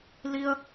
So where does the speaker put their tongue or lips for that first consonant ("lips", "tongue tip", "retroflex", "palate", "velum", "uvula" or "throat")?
tongue tip